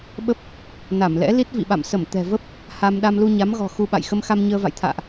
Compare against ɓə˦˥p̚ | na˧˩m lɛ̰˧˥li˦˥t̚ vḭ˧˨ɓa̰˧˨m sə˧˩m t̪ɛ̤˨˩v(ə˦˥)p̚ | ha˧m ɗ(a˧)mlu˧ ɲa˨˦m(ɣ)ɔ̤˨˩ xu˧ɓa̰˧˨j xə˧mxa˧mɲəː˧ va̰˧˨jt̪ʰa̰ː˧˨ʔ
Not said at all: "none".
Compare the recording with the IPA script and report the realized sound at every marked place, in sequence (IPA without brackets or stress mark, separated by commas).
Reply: ə˦˥, a˧, ɣ